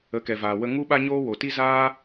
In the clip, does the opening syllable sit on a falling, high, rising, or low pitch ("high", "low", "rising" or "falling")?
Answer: rising